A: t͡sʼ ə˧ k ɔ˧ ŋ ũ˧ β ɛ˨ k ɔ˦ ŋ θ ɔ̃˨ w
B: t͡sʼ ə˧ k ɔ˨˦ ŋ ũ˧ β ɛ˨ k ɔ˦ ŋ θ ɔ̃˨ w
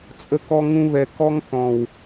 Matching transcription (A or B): A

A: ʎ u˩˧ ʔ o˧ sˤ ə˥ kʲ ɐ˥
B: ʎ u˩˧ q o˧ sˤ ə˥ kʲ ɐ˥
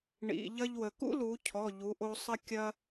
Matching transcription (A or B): A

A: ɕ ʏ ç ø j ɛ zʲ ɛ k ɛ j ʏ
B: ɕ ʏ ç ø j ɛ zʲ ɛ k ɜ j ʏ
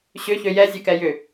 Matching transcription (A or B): A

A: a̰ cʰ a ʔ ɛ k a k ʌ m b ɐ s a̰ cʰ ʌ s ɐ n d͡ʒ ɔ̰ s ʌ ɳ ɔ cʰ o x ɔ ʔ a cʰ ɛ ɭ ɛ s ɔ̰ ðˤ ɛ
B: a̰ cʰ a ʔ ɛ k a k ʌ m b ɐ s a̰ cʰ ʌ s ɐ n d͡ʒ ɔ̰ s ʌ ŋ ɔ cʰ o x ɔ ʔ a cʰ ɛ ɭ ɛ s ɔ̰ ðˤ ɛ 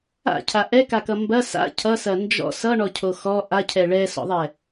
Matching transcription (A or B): A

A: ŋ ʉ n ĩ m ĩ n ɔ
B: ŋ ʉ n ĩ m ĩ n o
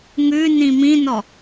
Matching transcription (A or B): A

